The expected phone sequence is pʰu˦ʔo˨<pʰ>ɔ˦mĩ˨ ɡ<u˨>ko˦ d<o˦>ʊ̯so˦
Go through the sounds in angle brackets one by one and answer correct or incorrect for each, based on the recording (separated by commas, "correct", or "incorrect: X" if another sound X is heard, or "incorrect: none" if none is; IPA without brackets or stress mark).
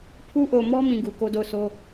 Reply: incorrect: m, correct, incorrect: o˦˨